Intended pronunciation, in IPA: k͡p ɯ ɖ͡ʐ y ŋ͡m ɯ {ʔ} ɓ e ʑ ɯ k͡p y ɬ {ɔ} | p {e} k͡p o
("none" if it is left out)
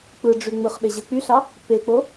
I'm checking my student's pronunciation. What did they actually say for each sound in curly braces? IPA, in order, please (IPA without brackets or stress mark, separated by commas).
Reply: χ, ɑ, e